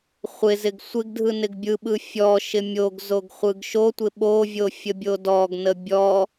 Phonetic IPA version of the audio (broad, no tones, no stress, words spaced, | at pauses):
χʷɪzɪɡ sʷɪɡdʱɯ nɪɡbʲɯɓɯ fʲɔʃɪ mʲoɡ zoɡχʷɯɡʃotʷɪ ɓovʲo fʲəbʲodɔɡnə bʲɔ